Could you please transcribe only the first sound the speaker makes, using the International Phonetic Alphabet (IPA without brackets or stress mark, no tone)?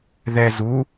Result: ð